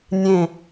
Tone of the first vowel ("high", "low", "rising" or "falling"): falling